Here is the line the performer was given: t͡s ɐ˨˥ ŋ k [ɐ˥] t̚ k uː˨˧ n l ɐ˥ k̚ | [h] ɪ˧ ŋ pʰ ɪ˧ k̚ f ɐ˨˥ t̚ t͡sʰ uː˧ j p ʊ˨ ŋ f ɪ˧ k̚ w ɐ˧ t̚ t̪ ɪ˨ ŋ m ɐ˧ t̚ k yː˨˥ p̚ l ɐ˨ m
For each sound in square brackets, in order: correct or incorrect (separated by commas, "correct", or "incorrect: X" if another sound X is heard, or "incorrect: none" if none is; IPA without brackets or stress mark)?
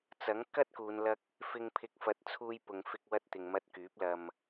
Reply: correct, incorrect: f